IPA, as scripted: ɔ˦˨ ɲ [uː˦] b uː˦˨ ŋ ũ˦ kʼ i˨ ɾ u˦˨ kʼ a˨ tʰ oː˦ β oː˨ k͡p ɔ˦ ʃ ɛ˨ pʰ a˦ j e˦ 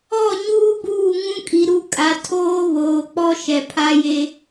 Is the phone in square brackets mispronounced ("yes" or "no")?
no